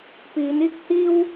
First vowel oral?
yes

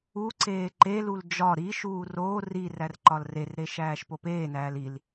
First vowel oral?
yes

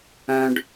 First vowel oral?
no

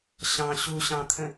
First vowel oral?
no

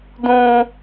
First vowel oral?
no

